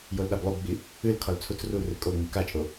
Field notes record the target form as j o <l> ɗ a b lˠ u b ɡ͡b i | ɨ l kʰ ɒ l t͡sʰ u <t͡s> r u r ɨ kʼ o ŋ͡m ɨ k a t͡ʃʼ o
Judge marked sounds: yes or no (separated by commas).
yes, yes